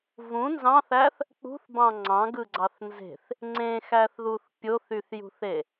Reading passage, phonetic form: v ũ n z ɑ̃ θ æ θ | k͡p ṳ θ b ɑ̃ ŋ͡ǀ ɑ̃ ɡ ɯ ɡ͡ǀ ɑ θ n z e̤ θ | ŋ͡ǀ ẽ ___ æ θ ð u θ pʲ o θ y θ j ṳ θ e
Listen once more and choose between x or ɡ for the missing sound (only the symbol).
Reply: x